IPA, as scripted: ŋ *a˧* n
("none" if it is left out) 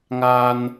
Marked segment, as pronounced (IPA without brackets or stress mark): a˧